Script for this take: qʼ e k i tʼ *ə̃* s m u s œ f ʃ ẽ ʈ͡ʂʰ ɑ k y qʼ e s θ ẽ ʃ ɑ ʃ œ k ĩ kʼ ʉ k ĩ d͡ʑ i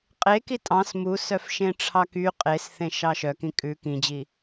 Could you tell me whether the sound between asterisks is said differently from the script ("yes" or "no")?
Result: yes